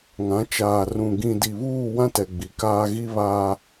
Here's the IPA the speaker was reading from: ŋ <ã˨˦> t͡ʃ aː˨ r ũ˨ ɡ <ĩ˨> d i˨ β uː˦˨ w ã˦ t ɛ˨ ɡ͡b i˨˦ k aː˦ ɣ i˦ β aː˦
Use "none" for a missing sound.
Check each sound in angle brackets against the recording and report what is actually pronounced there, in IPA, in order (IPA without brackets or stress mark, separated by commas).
ã˨˦, ĩ˨